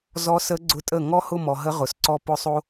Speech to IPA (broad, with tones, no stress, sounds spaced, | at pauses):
z ɔ˧˥ s ə˧˥ ɡ͡ǀ ʊ˧˥ tʼ ə˥˩ ŋ ɔ˥ h ʊ˥˧ m ɔ˨ ɦ ə˧˥ ʁ ʊ˩˥ s ǀ ɔ˥˧ p ʊ˥˧ sˤ o˥